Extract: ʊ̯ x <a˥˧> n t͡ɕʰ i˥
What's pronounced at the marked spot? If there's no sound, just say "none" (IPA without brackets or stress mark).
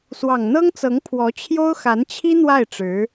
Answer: a˧˥